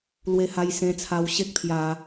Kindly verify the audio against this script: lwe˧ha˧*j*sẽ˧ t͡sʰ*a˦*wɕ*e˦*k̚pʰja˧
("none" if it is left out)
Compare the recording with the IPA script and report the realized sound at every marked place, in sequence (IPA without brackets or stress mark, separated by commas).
j, a˧, e˦